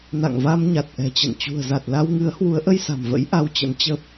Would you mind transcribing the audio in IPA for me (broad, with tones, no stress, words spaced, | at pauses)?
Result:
na̰˧˨ŋva˧m ɲa˨˩t̚ʔɛ̤˨˩t͡ɕə̰˧˨n t͡ɕṳ˨˩ə̯za˨˩t̚la˧wŋɨ˨˦ə̯ hwu˨˦ə̯ʔə˧jsa̤˨˩mvə̰˧˥j ʔa˧wt͡ɕə̰˧˥n t͡ɕə˦˥p̚